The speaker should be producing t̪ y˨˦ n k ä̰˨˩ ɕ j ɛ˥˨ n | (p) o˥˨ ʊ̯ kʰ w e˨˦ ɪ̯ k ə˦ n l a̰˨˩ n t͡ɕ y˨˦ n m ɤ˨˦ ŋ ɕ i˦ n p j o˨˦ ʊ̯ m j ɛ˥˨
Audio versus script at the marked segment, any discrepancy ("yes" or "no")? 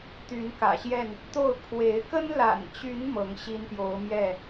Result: yes